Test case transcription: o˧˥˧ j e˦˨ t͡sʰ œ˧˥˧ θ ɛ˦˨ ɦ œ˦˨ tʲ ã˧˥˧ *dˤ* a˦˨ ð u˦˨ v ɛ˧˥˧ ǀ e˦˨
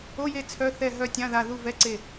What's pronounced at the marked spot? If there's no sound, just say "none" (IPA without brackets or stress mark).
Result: ð